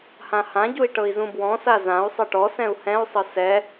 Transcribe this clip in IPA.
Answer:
h ã h ã ɟ u i̯ ʈ ɤ i̯ z ũ b w ɔ̃ s a z ã u̯ sˤ ɤ ʈ ɔ s ɛ̃ u̯ h ɛ̃ u̯ sˤ ɤ s ɛ

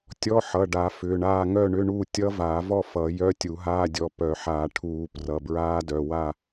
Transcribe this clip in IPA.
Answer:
tʲ ɔ˧˥˧ ħ ʌ˩˧˩ ɖ a˨˩˦ f ʏː˩˧˩ ɳ aː˥˨ ŋ œ˥˨ ɳ ʏ˧˥˧ ɳ uː˥˨ tʲ ʌ˦˥ v aː˨˩˦ v ɔ˥˨ f ʌ˨˩˦ j œ˧˥˧ tʲ u˨˩˦ ɦ aː˧˥˧ dʲ ɔ˩˧˩ p œ˨˩˦ ħ aː˨˩˦ ʈʰ uː˨˩˦ p r ʌ˩˧˩ b ɹ aː˦˥ d œ˩˧˩ w a˥˨

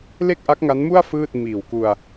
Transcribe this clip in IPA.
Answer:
l e˥˩ k̚ ʔ a˦˥ k̚ ŋ a˦˥ n m u˥˩ a̯ f ɯː˥˩ t̚ m iː˨˩ w k u˧ a̯

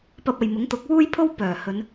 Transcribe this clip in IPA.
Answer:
p ɐ˧ p̚ ɐ˨ j m ʊ˨˥ ŋ t̪ ʊ˨˥ k̚ w uː˥ j pʰ o˥ w p œː˨˩ h ɵ˨˧ n

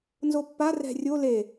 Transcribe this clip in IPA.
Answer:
n z o pː a r ɛ̤ rʲ o l e

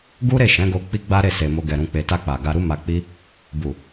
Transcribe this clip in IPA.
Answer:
ɡ u˦ ɾ e˦˨ ʃ ɛ̃˨˦ ɡ o˧ k͡p i˦ ɡ͡b a˦ ɾ e˦˨ s e˨ m o˧ ɡ ɛ˨ ɾ ũ˧ k͡p e˧ t a˧ k͡p a˨ ɡ a˧ ɾ u˦ m a˧ k͡p i˦ | b u˨

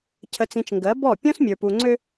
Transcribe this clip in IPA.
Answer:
cʰ ə˨ t͡s ĩ˨ t͡ʃ ŋ ɡ ɜ˨˦ b ɔ˦˨ pʲ ɔ̃˦ s mʲ ə˞˨ p u˨ ŋ͡ǀ ø˦

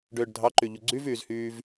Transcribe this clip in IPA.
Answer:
ɖ øː ɖ dʱ ɑ ǃ y ʎ u ɡ͡ǀ y v yː z h yː v

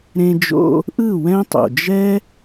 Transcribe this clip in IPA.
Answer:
ɾ ẽ˧ d͡ʒ o̰˧ | ʔ ɯ˦˨ w ɛ̃˦ tˤ o̰˨ d͡ʒ ɛ˦

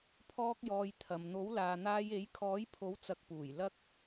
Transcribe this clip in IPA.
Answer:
pʰ ɔː˥ k̚ j ɔː˧ j t̪ʰ ɐ˨ m n̪ o˨˥ w l aː˨ n̪ aː˧ j e˨˥ j kʰ ɔː˨˥ j pʰ o˨˥ w t͡s ɐ˨ k̚ p uː˨˩ j l ɐ˥ k̚

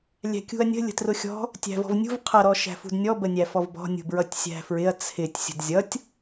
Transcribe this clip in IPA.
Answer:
lʲ æ̤ kʲ ṳ ɐ̯ nʲ ə̤ lʲ ə̤ t r ʊ xʲ ɔ̤ | tʲ æ̤ v ɔ̤ v nʲ ṳ v qʰ ʌ ɾ ɔ ʃ æ̤ f ṳ d nʲ ɔ b ə nʲ æ f ɔ v b ɔ̤ nʲ ṳ b ɹ ʌ tʲ sʲ æ̤ f ɹ ɪ ɐ̯ t͡sʰ ɪ tʲ sʲ ə̤ d zʲ ʌ tʲ

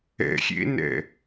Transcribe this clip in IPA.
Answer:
ɛ̰ xʲ ḛ n ɛ̰

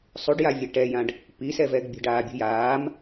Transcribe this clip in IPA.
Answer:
sˤ u ɖ j a vʲ ɛ ʈ ɛ j ã ɖ | p i s ɛ v ɛ ɡ bʲ ə̤ ɖ aː bʲ ṳ j aː m

